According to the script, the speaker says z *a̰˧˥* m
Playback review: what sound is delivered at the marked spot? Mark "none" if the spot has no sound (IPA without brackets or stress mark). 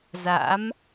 a̰˧˥